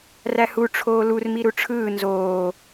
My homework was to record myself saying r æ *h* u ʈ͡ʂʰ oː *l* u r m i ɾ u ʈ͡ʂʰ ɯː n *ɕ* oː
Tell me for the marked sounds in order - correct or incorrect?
correct, correct, incorrect: z

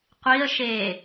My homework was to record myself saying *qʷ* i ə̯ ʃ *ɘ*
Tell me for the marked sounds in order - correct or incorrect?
correct, incorrect: e

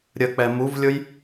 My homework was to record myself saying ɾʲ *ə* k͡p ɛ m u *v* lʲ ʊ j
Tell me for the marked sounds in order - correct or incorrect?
correct, correct

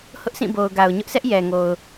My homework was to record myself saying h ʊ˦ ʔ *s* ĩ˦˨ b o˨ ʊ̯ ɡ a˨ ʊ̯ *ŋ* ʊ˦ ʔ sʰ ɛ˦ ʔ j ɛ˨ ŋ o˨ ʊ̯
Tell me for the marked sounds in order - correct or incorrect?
correct, incorrect: ɲ

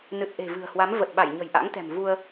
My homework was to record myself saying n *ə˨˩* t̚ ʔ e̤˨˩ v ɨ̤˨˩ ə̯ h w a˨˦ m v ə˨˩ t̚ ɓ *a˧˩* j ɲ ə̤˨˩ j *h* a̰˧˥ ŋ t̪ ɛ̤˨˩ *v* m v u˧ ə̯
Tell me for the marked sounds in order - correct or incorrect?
incorrect: ɨ˨˩, correct, incorrect: ʔ, incorrect: none

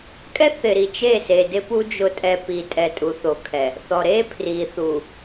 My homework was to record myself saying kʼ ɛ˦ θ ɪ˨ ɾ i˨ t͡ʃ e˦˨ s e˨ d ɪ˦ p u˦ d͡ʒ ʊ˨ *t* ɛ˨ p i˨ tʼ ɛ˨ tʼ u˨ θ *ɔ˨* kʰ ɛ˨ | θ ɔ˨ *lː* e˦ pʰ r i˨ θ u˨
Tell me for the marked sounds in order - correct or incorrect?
incorrect: tʼ, incorrect: o˨, incorrect: ɾ

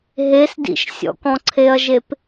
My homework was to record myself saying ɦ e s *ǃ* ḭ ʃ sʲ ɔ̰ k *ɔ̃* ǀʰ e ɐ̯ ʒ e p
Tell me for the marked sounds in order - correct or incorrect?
incorrect: d, correct

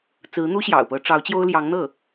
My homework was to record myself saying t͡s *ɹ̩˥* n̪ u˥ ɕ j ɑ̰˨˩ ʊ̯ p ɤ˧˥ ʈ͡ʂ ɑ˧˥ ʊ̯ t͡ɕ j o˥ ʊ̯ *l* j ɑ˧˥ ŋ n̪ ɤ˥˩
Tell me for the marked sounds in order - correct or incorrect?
incorrect: ɹ̩˧˥, correct

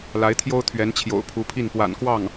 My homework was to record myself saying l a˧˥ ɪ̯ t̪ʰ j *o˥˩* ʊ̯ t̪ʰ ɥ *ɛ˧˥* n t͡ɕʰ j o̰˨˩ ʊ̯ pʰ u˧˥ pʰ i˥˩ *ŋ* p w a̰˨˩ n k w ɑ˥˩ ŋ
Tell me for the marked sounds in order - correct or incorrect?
incorrect: o˥, correct, incorrect: n

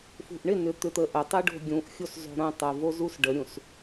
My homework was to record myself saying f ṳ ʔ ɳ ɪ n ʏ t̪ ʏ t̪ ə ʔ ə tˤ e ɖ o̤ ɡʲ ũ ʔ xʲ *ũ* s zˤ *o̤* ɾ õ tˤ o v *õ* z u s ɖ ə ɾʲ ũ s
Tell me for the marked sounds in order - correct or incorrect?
incorrect: u, correct, incorrect: o

